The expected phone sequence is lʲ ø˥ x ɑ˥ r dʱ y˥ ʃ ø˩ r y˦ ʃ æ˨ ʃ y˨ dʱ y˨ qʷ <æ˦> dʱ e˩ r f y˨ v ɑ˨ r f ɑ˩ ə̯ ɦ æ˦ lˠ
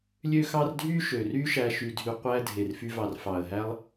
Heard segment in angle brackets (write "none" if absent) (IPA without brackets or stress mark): æ˦